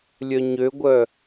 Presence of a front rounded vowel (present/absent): present